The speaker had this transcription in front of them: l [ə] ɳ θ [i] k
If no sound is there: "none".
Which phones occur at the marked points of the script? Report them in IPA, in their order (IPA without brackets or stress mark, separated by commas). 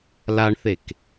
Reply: a, e